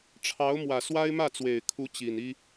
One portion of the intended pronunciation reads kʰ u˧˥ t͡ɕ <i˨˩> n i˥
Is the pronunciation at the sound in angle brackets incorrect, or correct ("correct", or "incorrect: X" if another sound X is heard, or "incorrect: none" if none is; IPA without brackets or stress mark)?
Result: correct